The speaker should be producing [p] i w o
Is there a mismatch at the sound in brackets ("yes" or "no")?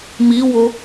yes